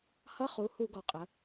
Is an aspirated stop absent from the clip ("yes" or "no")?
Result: yes